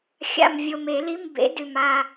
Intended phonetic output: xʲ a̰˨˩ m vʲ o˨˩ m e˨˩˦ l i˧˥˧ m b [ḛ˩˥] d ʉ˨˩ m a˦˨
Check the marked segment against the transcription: correct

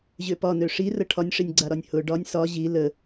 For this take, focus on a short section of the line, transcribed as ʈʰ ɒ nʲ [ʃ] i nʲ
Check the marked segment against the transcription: incorrect: ʂ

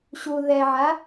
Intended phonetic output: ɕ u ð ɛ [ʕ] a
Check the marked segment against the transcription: correct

